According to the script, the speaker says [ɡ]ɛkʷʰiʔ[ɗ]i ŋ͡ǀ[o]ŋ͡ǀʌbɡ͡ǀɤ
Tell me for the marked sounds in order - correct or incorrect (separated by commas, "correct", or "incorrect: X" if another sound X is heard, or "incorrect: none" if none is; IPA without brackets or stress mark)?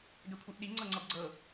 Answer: correct, correct, incorrect: ɤ